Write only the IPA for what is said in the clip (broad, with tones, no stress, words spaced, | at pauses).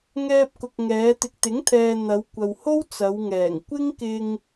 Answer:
ŋɛː˧p̚kʊ˨k̚ ŋɛː˨˧t̪ɪ˨k̚t̪ɪ˨˥ŋt̪ʰɛː˨ n̪ɐ˨˧wkʷɐ˨who˥w t͡sɐ˨˧wŋɛː˨˩ŋ kʷɪ˥ŋkɪ˧ŋ